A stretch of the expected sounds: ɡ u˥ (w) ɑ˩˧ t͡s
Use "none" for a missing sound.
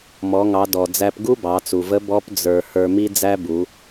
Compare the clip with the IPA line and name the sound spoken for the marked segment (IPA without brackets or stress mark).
b